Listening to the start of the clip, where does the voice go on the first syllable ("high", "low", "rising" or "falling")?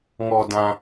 low